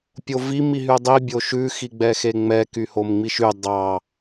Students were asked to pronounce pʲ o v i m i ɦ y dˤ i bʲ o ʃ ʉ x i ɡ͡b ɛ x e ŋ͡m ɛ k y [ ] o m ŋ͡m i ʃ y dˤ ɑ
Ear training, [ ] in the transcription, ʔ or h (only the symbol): h